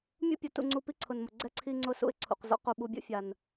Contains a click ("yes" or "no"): yes